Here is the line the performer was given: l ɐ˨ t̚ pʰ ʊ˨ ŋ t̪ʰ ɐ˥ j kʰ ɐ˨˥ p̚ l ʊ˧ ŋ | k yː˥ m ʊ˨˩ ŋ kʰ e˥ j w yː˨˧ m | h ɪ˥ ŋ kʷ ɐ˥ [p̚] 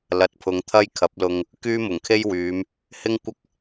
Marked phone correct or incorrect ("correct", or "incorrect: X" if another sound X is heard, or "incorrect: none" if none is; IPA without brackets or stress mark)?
incorrect: k̚